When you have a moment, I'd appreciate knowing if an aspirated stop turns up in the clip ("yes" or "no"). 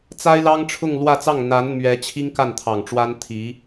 yes